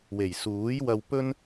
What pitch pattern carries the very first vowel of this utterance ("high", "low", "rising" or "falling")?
low